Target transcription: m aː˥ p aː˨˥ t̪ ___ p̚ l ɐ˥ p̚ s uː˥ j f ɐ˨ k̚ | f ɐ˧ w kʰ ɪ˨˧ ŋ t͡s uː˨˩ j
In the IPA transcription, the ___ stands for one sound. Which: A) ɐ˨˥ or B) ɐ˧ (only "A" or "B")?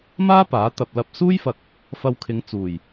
B